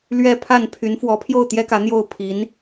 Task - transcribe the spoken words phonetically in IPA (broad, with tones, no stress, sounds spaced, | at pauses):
l ɥ ɛ˥ pʰ a˥˩ n pʰ y˧˥ n f w ɔ˧˥ pʰ j o˥˩ ʊ̯ t̪ j ɛ˥ k ä˧˥ n̪ j o˥˩ ʊ̯ pʰ i˧˥ n